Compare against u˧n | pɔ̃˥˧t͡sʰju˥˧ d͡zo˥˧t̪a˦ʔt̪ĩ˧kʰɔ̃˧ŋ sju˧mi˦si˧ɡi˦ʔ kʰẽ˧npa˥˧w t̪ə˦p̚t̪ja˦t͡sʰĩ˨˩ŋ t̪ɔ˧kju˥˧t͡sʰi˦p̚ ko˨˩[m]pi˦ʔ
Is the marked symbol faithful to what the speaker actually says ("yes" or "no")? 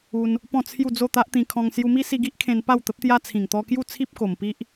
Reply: yes